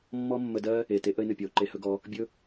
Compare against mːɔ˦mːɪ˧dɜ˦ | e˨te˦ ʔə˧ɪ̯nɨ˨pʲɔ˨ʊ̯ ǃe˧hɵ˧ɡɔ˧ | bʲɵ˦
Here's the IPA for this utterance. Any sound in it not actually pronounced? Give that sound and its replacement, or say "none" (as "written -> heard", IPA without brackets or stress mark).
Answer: ɪ˧ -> ə˧